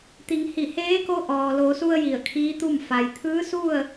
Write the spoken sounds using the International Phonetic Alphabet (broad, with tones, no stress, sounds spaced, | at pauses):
t̪ i˩˧ ŋ h i˧˩ h eː˧˥ k o˧˥ ʔ ɔː˩ l o˩˧ s u˧ ə̯ j i˧˩ ə̯ kʰ iː˧˥ t̪ u˥˨ m f a˩ j t̪ʰ ɯː˧˥ s u˥˨ ə̯